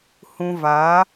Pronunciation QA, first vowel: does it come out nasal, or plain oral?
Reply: nasal